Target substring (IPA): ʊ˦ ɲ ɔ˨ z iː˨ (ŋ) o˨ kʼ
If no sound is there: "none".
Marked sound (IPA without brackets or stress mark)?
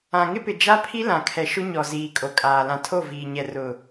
kʼ